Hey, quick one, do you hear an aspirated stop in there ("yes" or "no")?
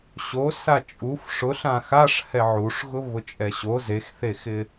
no